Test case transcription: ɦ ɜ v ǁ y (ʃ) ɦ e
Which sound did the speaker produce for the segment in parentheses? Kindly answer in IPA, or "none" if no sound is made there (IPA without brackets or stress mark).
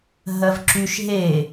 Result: ʃ